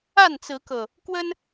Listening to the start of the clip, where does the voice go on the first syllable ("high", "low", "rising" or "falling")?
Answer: falling